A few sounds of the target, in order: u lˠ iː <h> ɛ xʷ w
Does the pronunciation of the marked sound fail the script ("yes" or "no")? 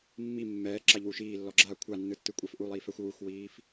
yes